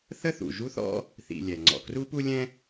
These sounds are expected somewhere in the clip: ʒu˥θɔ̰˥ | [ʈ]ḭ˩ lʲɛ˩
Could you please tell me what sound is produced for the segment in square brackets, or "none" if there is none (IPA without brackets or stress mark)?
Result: θ